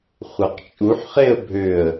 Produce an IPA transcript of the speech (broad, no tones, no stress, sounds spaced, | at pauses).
χʷ a q t͡ʃʼ u ħ χ e ə̯ bʱ ø ə̯